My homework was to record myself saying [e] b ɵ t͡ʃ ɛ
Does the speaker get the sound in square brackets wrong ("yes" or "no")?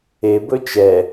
no